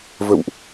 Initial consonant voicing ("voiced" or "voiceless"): voiced